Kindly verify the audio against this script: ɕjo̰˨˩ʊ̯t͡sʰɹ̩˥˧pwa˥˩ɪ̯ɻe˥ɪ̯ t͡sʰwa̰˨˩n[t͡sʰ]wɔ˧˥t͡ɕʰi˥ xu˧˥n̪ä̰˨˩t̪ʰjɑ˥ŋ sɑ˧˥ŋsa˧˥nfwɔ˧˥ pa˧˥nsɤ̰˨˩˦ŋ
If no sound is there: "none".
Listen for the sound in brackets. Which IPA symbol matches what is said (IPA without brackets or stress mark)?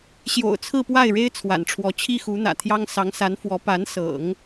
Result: ʈ͡ʂʰ